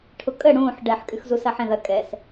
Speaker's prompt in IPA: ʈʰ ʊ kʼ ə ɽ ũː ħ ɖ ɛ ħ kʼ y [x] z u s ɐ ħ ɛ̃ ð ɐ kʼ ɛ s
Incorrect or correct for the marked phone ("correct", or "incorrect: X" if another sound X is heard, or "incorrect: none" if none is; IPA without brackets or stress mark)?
correct